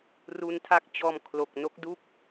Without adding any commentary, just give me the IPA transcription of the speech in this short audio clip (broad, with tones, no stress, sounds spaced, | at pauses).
r u˧ n tʰ a˦˥ k̚ t͡ɕ ɔː˧ m kʰ l o˨˩ k̚ n o˦˥ k̚ d u˥˩ k̚